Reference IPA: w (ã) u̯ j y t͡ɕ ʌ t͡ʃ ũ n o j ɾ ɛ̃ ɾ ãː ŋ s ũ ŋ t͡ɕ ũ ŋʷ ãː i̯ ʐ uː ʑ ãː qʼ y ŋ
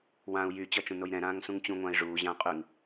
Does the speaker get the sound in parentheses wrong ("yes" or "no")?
no